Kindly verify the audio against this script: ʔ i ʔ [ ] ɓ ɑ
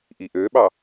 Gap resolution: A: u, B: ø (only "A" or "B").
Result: B